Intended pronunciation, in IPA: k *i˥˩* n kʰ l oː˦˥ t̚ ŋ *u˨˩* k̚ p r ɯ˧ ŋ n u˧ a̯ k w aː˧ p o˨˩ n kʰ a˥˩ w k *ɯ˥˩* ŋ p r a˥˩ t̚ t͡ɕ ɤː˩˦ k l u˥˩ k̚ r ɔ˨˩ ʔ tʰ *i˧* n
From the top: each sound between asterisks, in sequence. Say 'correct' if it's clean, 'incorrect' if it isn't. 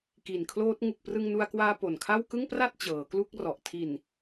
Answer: incorrect: i˨˩, correct, correct, incorrect: i˨˩

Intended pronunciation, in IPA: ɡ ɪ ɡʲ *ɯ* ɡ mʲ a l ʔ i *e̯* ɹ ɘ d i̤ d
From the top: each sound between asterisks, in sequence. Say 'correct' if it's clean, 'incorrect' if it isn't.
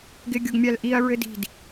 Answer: incorrect: ʊ, incorrect: ɐ̯

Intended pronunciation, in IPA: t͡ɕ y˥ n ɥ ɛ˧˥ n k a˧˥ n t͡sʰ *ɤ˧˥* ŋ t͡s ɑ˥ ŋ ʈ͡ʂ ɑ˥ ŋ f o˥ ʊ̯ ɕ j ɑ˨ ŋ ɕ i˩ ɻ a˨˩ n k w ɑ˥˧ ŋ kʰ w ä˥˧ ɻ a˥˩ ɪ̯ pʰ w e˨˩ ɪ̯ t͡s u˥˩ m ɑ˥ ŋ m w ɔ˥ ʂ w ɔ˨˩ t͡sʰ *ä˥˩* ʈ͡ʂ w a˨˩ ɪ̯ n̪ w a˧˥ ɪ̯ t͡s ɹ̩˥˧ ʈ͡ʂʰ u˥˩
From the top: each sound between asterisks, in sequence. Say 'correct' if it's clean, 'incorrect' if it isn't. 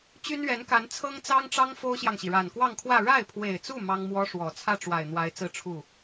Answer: incorrect: ɤ˥, correct

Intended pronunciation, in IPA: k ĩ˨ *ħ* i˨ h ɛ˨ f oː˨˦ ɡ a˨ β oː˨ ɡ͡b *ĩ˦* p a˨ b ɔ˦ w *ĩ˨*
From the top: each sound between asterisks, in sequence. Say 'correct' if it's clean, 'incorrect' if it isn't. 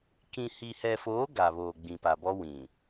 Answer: incorrect: h, incorrect: ĩ˨, correct

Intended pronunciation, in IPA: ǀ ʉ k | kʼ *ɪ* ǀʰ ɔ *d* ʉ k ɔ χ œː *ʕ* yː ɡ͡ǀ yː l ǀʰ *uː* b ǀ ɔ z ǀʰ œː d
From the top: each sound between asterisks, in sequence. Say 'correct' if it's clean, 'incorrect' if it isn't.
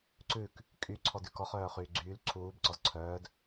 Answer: incorrect: y, correct, incorrect: χ, correct

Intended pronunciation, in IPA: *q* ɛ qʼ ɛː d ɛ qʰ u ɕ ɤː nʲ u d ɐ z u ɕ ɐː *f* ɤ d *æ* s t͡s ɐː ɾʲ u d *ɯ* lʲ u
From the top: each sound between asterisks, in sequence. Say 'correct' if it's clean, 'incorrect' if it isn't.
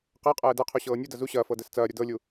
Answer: correct, correct, incorrect: ɛ, incorrect: ɤ

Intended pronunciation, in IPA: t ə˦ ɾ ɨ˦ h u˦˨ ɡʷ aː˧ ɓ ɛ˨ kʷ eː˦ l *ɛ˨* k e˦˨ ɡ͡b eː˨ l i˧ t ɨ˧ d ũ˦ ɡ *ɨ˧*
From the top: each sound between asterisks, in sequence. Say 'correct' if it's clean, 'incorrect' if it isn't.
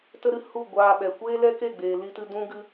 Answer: incorrect: ɛ˦, incorrect: ɨ˦

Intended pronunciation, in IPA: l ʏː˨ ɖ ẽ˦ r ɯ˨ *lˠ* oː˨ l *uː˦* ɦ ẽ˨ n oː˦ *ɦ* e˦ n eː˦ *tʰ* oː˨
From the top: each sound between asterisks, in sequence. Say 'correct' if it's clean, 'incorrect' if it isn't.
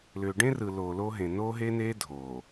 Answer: incorrect: l, incorrect: oː˦, correct, incorrect: dʱ

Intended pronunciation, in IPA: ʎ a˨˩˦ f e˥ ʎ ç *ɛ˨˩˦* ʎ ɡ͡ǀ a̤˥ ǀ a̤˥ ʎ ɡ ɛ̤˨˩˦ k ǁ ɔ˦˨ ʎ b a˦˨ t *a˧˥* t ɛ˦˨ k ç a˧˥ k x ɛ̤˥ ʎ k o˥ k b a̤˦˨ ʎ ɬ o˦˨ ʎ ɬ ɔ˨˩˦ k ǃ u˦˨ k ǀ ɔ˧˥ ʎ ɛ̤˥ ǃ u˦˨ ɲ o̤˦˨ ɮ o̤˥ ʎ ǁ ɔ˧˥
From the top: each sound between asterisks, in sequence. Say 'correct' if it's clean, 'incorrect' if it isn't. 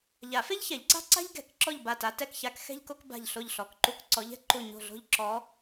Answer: correct, correct

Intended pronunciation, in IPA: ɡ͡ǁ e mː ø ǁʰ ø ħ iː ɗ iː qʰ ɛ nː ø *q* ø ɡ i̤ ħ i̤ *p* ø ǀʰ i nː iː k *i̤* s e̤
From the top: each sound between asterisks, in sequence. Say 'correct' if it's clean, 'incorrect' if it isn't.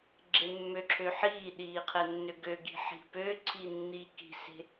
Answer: incorrect: ɡ, correct, correct

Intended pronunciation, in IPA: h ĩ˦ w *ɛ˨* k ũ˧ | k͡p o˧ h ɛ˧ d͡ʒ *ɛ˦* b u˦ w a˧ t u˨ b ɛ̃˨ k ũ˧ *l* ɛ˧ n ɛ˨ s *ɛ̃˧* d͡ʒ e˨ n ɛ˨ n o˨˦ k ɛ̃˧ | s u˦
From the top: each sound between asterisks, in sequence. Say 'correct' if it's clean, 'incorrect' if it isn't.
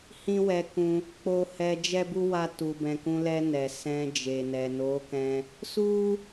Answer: incorrect: ɛ˧, correct, correct, correct

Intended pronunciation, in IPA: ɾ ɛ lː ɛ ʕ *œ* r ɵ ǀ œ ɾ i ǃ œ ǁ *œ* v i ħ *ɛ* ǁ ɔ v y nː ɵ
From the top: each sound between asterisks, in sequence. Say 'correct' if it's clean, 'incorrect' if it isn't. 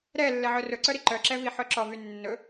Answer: correct, incorrect: ɛ, incorrect: œ

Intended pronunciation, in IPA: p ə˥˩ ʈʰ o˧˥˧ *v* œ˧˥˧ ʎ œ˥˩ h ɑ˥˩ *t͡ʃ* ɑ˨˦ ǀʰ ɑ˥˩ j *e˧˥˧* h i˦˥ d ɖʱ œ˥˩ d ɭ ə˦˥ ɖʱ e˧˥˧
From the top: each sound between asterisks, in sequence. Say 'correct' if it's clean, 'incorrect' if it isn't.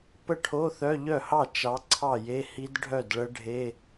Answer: incorrect: θ, correct, correct

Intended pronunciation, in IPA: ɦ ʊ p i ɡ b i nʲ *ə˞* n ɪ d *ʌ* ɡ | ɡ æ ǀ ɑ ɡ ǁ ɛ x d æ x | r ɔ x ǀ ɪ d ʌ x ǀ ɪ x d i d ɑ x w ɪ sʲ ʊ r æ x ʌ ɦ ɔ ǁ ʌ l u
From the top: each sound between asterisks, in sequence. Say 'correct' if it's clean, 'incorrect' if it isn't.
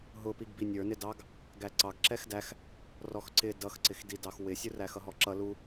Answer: correct, incorrect: ɑ

